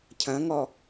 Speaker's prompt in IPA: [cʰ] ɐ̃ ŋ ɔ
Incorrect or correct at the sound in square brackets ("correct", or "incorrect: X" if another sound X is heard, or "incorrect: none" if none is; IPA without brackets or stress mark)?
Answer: correct